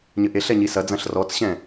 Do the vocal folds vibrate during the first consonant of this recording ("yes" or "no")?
yes